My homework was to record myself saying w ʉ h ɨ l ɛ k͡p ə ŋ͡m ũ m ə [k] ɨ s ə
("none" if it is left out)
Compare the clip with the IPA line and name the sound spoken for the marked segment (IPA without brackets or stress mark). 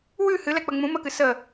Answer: k